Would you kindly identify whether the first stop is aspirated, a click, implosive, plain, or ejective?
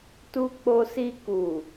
plain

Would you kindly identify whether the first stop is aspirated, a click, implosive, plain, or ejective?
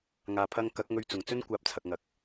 aspirated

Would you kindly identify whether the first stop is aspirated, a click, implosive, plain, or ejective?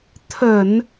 aspirated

